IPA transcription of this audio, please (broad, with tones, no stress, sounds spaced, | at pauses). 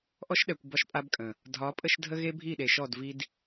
ʔ ɔ˦ ʃ ɗ ɛ˨ kʷ b ɒ˦ ʃ pʼ a˦ b kʼ ə̃˨ | dʱ ɒ˨˦ pʼ ə˦ ʃ dʱ ə˦ ɣ e˦ bʱ i˦˨ ɗ e˨ ʃ ɔ˦˨ d v i˦ d